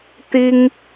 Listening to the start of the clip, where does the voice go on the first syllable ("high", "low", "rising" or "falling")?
high